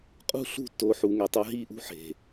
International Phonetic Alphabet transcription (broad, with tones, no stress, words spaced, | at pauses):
qʼṳ˦˨ɬṳ˦˨tːo˨˦ ħu˨ŋɛ˨tˤɤ˧ ɦi˦˨ʔṳ˦ ħe̤˨